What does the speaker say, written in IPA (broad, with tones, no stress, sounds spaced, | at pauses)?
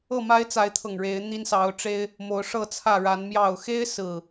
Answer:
ɤ˥˨ m a˦ ɪ̯ t͡s a˨˦ ɪ̯ t̪ʰ ɤ˨˩ ŋ ɻ e˨˦ ɪ̯ n̪ i˦ n s ɑ˨˦ ʊ̯ ʈ͡ʂ e˦ ɪ̯ | m o˨˦ ʊ̯ ʂ ɤ˥˨ t͡sʰ ä˥˨ ɻ a˨˦ n m j ɑ˨˩ ʊ̯ x e˦ ɪ̯ s ɹ̩˨˩